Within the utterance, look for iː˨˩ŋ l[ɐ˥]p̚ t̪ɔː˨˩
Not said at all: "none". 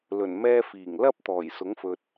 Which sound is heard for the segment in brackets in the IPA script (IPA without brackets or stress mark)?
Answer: ɐ˥